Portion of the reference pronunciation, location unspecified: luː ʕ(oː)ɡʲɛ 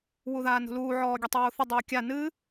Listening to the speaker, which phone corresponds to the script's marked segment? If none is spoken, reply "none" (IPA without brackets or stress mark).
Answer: ɔː